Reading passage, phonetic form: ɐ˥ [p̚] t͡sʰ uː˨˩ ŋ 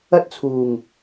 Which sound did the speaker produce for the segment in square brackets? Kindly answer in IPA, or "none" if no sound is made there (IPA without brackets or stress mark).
t̚